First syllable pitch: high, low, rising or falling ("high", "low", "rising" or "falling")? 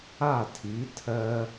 falling